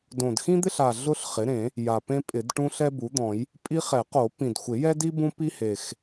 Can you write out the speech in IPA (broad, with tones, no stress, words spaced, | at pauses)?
dõ˨˩dxĩ˥d̪ɪ˥ɬa˨˩ ɮʊ˥ɬ χɪ˩˥ɾẽ˨˩˦ | ja˨˩pẽ˥pʼɪ˨˩˦dʈũ˥ ɬɛ˥bu˩˥d̪ɔ̃˨˩˦j | pʼi˥ χɛ˨˩˦qo˨˩˦ pĩ˨˩dxʷɪ˨˩˦jɛ˥di˥ bũ˥pi˥he˨˩x